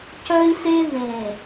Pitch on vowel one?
high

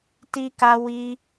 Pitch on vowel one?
high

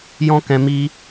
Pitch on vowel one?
high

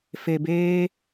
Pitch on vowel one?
low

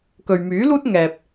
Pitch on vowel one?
low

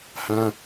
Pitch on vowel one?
high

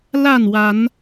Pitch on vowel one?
falling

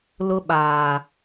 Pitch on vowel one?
high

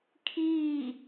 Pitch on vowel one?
falling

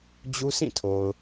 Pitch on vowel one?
high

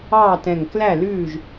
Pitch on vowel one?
falling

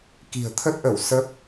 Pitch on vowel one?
low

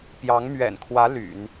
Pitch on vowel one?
rising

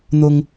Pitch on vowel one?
high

